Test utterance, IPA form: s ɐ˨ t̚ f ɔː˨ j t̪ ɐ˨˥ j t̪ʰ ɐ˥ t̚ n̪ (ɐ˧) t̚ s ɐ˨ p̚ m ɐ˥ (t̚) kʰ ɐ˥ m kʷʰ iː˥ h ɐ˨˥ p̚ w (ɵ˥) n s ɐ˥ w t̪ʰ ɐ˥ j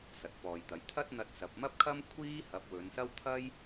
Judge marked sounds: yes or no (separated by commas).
yes, no, no